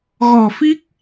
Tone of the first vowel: low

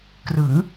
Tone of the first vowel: rising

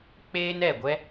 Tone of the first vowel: high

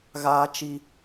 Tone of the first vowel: high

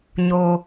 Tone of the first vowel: low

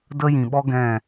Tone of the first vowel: high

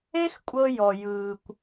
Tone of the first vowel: high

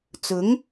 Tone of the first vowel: rising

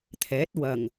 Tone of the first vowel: rising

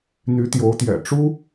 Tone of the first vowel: rising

